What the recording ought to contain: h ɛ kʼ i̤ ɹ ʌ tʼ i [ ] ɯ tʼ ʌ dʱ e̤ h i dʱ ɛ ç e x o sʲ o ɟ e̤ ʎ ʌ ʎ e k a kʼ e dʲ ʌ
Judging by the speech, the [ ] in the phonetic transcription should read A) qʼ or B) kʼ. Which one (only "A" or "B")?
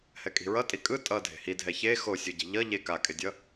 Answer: B